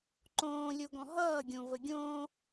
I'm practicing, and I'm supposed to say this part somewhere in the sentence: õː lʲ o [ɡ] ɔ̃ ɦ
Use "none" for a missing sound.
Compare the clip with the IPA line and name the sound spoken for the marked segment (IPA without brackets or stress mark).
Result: ɡ